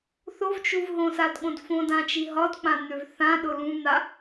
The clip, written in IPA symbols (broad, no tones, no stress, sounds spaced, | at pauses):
θ o v t͡ʃ u v ɦ õ s a d ɠ õ d f õ d ã t͡ʃ i ɦ ɒ d k͡p ã n̪ ø v θ ã ɗ ʊ l ũ n̪ a